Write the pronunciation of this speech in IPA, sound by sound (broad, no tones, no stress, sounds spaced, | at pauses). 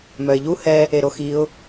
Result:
m œ ɪ̯ ʎ u h ɛ | e ɾ o x i ʊ̯